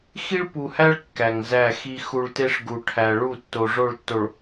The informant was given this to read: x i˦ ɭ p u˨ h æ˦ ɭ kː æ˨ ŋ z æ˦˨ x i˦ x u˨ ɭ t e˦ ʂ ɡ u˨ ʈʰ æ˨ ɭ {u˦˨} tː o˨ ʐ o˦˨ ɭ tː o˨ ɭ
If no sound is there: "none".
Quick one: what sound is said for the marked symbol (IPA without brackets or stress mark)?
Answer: u˦˨